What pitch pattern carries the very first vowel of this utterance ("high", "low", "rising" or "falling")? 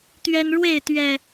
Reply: high